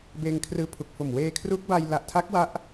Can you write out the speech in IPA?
b eː˧ ŋ kʰ r ɯː˧ pʰ u˨˩ k̚ f o˨˩ m w eː˧ kʰ r u˦˥ k̚ b a˧ j l a˨˩ ʔ tʰ a˦˥ k̚ w a˦˥ ʔ

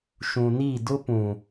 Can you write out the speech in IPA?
ʃ ũ˨ n i˦˨ d ʊ˦ p ũ˨

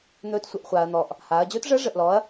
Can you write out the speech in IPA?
n̪ ɵː˧˥ t sʷ ə˩˧ ʔ χʷ aː˩ ɐ̯ n̪ ɔ˩ ʔ | h aː˩˧ ɐ̯ d͡ʑ ɵː˧˥ t ʐ əː˧˥ ʐ ə˩ ʔ l ɔ˩˧ ɐ̯

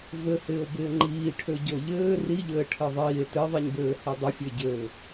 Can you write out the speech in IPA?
v ɘ h ɪː o̯ b ɪː ŋ͡ǃ iː ʈʰ ø ɟ o ʎ ɘː r i ʎ ɘː ʈʰ ɘ ðˤ iː e̯ t ɘ ðˤ i ɲ b ɘː h i dˤ ɪ fʲ ø ɟ ɘː

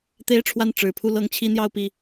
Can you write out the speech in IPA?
t̪ e˥ ɪ̯ ʈ͡ʂʰ w a˥˩ n ʈ͡ʂ ɻ̩˨˩ pʰ u˥˩ l ɤ˥ ŋ t͡ɕʰ i˥ n̪ j ɑ˥˧ ʊ̯ p i˥˩

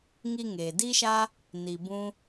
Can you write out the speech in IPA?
ŋ i˧ ŋ eː˨ d i˦ ʃ a˦ | n i˨ b ũ˦

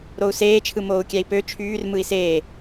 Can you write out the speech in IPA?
ɾ o u̯ s eː t͡ʃʰ ɯ m oː u̯ kʲ æ i̯ p ø t͡ʃʰ yː r m ɯ i̯ s eː

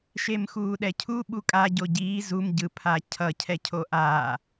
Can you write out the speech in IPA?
ʃ e m x uː ɗ ɛ cʰ u ɓ u kʼ a ɟ o ɟ iː z u m ɟ ɯ pʰ a cʰ ʌ cʰ ɛ cʰ o ʔ aː

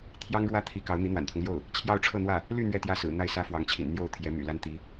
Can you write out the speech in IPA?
t̪ʰ j ɑ˥ ŋ ɻ w ä˥ t̪ʰ i˧˥ k ɑ˧˥ ʊ̯ n̪ i˧˥ n̪ w a̰˨˩ n t̪ʰ ʊ˦ ŋ l j o˥˩ ʊ̯ | t͡ɕʰ j ɑ˥˧ ʊ̯ ʈ͡ʂʰ ɤ˥˧ n̪ w ä˥˩ | l y˥˧ n̪ ɥ ɛ˥˧ t̪ j ä˥˩ s ɹ̩˨˩ n̪ a˥˩ ɪ̯ s ä˥ f w ɑ˧˥ ŋ t͡ɕʰ ḭ˨˩ n n̪ j o˥˩ ʊ̯ t̪ʰ j ɛ˧˥ m y̰˨˩ l a˥ n t̪ i˧˥

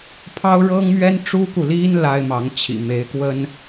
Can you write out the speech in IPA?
pʰ ɑ˥ ʊ̯ ɻ ɤ˥ ŋ m ɥ ɛ˥ n ʈ͡ʂ u˥ k u˨ l i˥ n l a˥ ɪ̯ m ɑ˧˥ ŋ t͡ɕʰ ḭ˨˩ m e˧˥ ɪ̯ k w ə˥ n

